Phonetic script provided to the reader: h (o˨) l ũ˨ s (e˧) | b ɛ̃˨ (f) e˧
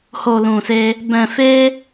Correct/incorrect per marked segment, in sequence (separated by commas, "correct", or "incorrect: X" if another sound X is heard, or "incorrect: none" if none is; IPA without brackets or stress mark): correct, correct, correct